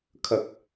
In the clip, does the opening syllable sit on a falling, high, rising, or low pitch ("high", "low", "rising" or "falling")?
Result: low